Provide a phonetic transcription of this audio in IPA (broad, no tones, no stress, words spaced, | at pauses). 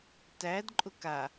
tæd ǃʼʊka